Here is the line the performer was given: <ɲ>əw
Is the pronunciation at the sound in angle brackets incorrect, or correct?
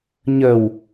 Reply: correct